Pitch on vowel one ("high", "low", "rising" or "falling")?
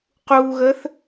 low